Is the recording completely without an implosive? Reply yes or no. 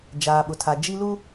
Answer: no